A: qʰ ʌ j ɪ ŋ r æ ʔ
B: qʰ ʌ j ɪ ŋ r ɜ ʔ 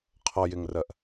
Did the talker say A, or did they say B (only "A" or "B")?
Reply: B